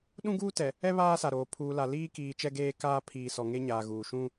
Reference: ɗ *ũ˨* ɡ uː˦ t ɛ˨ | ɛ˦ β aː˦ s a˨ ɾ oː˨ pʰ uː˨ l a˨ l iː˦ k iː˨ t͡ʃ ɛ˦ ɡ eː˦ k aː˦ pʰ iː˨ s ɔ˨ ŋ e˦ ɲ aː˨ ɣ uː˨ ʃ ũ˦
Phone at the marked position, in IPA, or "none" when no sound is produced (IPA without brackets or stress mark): ũ˦